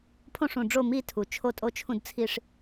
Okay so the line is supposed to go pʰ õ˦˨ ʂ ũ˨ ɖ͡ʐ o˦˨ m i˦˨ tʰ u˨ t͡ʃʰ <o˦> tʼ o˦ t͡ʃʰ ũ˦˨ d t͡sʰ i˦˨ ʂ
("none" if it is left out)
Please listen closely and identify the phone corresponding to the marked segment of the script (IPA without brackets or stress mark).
o˦˨